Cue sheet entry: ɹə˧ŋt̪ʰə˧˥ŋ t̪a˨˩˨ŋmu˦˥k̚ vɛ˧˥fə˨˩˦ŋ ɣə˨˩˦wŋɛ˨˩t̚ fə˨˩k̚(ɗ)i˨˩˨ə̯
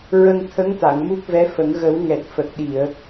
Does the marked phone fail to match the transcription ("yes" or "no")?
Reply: no